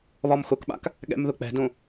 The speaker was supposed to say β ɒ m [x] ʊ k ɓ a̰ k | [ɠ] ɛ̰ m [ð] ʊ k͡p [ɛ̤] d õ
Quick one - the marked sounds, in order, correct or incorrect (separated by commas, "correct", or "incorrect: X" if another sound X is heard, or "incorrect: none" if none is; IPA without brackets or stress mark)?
correct, correct, correct, correct